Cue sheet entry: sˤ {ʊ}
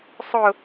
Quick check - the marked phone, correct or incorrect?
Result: correct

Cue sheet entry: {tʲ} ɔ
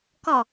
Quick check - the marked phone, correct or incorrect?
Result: incorrect: k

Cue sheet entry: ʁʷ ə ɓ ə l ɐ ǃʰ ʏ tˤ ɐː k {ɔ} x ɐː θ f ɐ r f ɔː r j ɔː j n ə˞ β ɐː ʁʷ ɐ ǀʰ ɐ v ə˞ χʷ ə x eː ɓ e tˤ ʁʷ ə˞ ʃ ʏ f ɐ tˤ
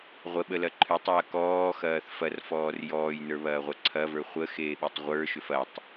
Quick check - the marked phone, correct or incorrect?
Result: incorrect: ɔː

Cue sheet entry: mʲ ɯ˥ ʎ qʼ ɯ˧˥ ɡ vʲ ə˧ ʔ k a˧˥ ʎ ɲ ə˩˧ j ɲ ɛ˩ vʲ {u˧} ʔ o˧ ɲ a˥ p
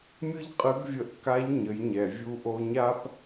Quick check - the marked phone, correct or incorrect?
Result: correct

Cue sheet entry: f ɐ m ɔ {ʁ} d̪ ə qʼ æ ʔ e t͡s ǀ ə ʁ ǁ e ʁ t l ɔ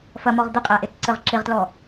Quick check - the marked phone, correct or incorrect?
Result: correct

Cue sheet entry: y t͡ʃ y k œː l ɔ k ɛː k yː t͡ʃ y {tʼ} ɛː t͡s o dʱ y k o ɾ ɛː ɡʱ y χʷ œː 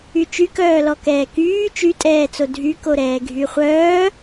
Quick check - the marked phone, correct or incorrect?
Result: correct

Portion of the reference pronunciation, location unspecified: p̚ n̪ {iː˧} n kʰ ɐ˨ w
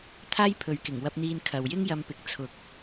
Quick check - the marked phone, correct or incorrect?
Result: correct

